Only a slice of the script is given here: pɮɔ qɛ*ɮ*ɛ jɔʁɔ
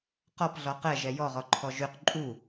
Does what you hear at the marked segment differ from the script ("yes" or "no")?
yes